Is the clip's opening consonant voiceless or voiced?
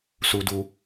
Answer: voiceless